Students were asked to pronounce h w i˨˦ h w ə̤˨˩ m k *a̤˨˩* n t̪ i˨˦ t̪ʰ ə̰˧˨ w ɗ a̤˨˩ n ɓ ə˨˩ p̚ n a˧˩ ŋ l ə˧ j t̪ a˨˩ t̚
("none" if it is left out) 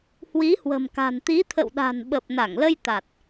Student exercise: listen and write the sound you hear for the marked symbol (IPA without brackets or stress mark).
a̤˨˩